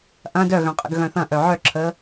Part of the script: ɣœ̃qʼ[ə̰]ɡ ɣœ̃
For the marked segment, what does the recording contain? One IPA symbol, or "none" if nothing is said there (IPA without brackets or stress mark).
ə̰